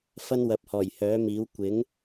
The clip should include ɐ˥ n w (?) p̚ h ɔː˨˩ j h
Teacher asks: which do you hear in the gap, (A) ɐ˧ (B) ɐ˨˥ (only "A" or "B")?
B